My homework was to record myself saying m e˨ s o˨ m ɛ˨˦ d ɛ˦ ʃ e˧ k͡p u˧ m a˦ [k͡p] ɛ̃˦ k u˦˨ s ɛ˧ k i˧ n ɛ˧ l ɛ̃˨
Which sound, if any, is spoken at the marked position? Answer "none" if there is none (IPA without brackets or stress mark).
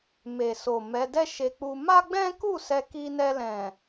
ɡ͡b